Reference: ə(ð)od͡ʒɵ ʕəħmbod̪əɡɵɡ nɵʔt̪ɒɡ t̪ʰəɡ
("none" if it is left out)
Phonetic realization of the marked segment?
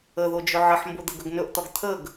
ð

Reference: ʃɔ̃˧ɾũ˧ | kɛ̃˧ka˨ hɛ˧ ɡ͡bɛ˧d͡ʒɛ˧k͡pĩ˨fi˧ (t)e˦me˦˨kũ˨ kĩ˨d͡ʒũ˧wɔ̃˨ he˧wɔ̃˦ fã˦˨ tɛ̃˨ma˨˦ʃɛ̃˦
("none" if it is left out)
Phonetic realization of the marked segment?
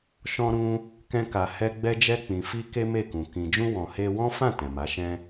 k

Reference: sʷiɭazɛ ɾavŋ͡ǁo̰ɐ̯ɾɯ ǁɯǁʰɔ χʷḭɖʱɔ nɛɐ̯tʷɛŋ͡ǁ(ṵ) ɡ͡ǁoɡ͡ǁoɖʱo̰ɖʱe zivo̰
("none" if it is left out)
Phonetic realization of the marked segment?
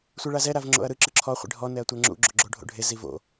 ṵ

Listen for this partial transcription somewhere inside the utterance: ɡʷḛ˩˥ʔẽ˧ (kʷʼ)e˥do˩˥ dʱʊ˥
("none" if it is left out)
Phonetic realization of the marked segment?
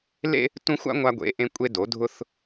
kʷʼ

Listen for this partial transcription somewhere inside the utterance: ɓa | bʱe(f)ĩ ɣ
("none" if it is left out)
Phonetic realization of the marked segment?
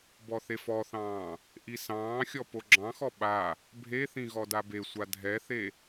θ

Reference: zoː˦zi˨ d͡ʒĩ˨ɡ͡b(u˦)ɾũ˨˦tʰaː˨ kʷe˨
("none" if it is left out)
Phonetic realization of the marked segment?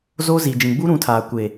u˦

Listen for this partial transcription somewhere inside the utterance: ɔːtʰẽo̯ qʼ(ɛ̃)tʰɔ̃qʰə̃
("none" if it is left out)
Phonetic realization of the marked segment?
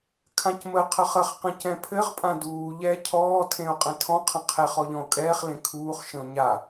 ɛ̃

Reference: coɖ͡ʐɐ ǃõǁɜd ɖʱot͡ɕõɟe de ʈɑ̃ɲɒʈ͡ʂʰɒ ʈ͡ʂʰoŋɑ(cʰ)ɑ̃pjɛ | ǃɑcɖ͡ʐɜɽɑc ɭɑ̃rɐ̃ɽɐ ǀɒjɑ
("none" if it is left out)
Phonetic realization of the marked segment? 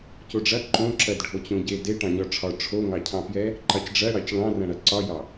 cʰ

